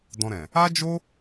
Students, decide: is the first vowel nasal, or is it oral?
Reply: nasal